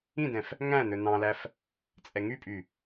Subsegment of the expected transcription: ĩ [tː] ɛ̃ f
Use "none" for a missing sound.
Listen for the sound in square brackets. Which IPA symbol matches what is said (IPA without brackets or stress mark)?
d